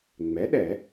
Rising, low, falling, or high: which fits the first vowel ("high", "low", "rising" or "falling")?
rising